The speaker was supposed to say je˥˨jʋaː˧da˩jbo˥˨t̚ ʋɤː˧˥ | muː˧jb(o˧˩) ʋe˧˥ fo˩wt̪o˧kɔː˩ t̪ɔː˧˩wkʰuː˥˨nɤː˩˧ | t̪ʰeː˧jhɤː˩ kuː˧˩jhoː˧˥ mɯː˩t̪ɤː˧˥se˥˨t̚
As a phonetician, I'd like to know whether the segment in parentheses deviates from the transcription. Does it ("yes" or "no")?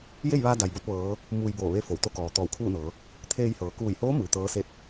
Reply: yes